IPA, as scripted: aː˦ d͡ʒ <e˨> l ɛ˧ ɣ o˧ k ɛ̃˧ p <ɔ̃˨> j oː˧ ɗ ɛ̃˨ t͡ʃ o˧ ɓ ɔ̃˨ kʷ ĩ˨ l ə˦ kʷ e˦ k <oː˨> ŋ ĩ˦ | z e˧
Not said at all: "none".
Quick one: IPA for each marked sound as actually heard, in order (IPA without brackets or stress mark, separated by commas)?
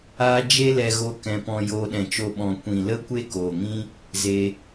e˦, ɔ̃˧, oː˨